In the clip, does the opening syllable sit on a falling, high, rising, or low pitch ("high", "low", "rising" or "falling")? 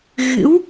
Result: rising